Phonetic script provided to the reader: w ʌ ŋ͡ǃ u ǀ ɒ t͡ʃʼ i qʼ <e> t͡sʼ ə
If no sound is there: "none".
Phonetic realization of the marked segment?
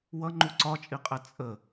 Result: ɛ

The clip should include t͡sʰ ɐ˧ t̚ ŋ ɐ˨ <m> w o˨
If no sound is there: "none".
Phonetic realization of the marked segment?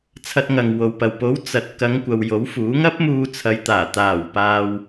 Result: ŋ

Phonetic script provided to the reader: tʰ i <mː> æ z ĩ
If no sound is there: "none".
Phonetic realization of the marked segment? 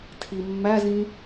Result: mː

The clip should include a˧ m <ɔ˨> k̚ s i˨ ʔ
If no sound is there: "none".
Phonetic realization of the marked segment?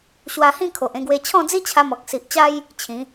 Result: ɔ˨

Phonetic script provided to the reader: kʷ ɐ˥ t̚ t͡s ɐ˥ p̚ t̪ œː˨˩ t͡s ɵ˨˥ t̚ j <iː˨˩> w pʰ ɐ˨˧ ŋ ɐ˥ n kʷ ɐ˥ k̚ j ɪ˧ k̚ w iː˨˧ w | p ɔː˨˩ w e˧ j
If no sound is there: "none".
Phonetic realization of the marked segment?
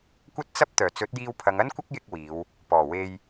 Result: iː˧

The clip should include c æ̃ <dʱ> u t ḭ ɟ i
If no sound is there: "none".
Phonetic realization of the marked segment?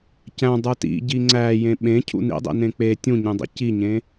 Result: dˤ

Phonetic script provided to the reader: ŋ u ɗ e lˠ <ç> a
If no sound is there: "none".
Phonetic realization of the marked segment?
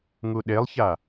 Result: ç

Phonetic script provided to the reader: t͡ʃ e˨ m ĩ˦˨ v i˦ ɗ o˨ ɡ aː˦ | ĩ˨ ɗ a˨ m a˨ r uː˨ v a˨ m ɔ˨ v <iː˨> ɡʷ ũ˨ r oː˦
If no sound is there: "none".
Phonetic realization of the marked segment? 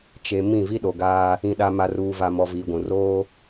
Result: iː˨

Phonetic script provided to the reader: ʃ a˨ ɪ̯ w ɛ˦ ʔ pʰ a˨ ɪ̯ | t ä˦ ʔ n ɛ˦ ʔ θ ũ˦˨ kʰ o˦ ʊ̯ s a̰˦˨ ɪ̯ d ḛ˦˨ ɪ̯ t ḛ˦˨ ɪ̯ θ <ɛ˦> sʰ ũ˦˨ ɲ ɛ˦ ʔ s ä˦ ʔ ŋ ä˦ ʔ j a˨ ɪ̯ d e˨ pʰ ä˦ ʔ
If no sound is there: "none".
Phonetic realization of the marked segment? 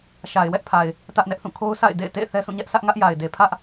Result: ɛ˦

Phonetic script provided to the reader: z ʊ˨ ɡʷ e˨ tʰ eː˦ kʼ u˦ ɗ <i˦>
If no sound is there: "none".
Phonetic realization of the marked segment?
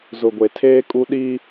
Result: i˦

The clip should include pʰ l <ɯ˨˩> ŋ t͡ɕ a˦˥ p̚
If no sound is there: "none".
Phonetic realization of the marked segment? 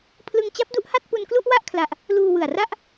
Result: ɯ˧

